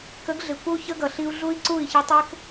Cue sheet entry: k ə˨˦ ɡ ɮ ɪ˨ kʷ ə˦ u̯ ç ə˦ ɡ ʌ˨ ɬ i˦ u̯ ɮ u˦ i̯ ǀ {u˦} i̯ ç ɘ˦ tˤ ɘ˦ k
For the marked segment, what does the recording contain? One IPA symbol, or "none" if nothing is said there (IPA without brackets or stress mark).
u˦˨